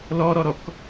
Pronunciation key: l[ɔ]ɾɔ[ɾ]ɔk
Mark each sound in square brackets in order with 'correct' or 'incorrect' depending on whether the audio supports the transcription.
correct, correct

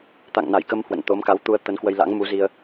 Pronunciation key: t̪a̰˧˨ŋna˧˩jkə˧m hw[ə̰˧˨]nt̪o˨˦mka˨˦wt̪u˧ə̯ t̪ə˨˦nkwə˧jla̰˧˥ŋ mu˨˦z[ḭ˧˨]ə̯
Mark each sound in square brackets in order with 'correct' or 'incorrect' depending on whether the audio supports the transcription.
correct, incorrect

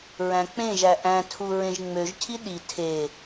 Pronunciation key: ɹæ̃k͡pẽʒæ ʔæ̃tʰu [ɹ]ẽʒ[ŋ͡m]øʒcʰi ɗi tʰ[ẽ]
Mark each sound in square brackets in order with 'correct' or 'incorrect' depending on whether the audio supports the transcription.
correct, correct, incorrect

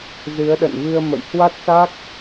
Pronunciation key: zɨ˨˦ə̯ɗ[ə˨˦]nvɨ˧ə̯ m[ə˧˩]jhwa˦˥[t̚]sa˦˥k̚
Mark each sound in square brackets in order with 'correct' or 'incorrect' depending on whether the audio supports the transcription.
incorrect, incorrect, correct

